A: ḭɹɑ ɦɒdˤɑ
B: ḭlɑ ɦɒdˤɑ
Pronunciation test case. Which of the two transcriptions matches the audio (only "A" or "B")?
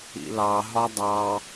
B